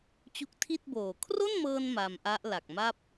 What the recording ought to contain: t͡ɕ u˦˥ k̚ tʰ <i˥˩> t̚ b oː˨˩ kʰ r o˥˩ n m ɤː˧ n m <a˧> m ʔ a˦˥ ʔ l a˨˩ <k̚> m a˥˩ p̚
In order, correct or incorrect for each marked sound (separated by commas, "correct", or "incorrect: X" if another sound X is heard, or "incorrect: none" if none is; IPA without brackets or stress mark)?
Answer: correct, correct, correct